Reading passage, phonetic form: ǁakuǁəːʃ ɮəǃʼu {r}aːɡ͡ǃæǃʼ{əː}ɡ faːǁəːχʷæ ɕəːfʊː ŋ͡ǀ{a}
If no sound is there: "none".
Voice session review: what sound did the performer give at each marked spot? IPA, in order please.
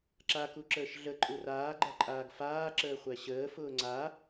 r, aː, a

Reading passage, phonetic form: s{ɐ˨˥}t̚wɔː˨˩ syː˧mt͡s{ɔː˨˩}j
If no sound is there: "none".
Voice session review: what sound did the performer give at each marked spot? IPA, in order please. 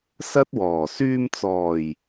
ɐ˥, ɔː˨˩

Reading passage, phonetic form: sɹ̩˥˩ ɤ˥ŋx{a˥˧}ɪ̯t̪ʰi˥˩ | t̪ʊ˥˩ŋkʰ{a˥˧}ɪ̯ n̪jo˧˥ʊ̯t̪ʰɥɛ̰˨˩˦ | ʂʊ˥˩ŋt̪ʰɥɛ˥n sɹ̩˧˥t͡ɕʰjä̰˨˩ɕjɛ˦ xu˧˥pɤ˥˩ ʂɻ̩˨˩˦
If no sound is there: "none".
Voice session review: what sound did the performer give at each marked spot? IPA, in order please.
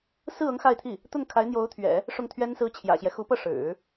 a˥˧, a˧˥

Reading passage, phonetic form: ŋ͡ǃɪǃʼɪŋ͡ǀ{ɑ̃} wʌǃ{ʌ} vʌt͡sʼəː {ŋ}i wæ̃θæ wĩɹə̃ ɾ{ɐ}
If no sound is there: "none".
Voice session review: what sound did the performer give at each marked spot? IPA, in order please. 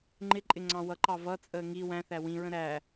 ɑ̃, ɑ, ŋ, æ

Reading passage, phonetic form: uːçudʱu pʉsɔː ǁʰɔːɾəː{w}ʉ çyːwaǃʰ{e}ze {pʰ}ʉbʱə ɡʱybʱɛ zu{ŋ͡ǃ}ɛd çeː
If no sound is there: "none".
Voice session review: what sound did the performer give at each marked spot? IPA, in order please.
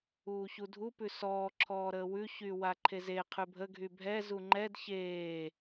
w, e, qʰ, ŋ͡ǃ

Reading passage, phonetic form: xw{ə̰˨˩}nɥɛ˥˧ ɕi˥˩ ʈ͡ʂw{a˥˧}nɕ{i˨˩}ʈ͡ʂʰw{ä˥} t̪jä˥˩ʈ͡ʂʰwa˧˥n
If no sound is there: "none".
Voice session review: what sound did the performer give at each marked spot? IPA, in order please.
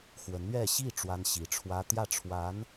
ə˧˥, a˥, i˧˥, ä˥

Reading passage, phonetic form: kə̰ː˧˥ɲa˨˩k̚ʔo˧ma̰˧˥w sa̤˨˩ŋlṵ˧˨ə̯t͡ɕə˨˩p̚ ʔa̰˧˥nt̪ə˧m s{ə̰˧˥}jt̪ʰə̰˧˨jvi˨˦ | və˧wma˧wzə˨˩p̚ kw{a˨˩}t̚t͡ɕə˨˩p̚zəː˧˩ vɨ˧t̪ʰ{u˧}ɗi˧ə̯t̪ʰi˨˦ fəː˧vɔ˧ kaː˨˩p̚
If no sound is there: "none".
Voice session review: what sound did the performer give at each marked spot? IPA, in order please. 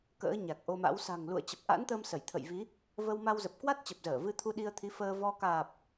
ə˧˩, a˦˥, u˧

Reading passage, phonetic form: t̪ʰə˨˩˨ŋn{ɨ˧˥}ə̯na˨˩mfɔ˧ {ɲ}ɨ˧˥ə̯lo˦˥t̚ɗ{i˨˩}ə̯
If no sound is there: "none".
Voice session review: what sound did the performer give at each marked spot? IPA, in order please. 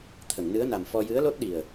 ɨ˧˥, j, i˨˩

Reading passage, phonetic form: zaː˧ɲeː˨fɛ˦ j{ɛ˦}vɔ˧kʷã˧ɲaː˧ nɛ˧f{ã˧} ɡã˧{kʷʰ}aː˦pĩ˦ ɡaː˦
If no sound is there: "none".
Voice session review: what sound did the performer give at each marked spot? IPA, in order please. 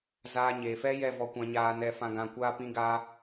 ɛ˦˨, ã˧, kʷ

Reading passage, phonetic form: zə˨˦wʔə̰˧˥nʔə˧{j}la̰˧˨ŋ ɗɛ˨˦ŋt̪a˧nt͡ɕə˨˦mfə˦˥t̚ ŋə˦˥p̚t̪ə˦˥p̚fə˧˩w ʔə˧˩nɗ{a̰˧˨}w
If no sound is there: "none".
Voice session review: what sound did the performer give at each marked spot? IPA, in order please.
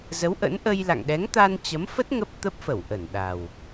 j, a˨˩

